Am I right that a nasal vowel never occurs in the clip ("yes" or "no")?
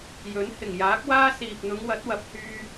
yes